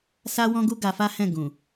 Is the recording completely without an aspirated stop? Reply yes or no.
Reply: yes